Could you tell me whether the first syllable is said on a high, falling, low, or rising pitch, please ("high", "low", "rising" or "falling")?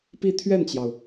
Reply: falling